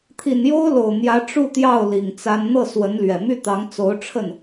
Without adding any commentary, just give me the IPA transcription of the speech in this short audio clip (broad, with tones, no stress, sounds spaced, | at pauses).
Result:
t̪ʰ i˨˩ n j o˥ ʊ̯ l o˨˩ ʊ̯ n̪ j ä˧˥ ʈ͡ʂ u˥˧ t̪ j ɑ˥˩ ʊ̯ l i˨˩ ŋ t͡s a˥ n n̪ ɤ˥˩ s w ə˧˥ n l ɥ ɛ˨˩ m y˥˩ t̪ ɑ˧˥ ŋ t͡s o˧˥ ʊ̯ ʈ͡ʂʰ ə˥˩ n